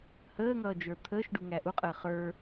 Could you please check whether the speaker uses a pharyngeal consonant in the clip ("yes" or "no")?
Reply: no